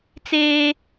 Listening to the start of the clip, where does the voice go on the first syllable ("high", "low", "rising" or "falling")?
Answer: high